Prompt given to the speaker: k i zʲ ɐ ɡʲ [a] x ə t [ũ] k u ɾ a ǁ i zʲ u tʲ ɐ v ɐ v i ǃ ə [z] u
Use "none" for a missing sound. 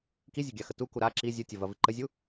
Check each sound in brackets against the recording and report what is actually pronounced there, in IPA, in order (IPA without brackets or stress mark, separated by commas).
a, u, zʲ